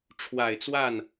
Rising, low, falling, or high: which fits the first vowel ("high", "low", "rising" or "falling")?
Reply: low